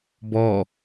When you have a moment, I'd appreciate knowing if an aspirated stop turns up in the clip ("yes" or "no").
no